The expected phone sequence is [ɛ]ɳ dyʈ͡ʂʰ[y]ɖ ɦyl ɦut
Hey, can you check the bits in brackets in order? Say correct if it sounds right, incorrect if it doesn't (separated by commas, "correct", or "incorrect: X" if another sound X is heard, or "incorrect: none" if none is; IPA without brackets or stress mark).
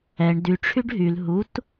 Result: correct, correct